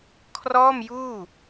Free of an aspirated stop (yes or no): no